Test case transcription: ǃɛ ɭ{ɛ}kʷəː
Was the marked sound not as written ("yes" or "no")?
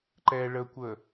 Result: yes